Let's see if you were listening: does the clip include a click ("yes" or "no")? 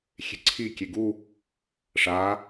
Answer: yes